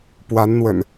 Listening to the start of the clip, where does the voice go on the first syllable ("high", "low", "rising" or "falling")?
rising